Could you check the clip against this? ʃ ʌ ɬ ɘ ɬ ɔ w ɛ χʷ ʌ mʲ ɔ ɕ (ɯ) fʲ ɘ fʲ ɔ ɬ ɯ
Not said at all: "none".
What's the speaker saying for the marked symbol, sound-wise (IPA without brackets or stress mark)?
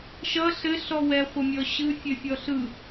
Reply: ɯ